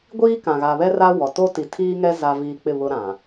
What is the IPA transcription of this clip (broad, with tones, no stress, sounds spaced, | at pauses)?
ɡʷ iː˦ k ã˨ ɣ a˨ β ɛ˦ r a˦ w ɔ˨ t o˦ t i˨ tʰ iː˦ ŋ ɛ˦ z a˦ v iː˦ k͡p ɪ˦˨ β ʊ˦ ɾ ã˨